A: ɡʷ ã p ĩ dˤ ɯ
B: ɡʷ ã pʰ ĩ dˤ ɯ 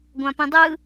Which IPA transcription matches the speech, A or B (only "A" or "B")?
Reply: A